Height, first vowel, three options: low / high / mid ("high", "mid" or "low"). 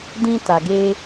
high